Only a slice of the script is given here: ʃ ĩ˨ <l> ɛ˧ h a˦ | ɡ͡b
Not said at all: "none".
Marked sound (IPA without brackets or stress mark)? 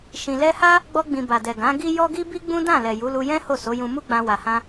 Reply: l